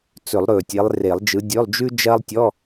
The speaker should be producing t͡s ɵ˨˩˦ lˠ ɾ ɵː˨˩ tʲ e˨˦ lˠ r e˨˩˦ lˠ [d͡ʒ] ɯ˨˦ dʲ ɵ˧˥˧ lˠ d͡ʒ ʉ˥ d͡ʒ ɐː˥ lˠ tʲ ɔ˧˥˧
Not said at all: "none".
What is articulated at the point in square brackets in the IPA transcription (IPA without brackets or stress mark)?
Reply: d͡ʒ